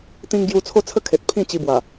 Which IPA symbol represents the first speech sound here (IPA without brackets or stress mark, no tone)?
t̪